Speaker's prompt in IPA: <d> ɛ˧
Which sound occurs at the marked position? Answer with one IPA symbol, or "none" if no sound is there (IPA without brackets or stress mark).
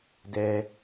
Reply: d